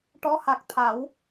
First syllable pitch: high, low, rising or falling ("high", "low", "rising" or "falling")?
rising